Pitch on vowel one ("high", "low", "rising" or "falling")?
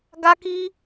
high